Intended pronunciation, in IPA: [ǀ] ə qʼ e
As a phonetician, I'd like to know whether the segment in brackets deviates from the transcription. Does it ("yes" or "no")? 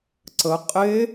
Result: no